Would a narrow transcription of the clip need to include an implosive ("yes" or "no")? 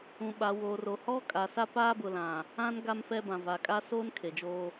yes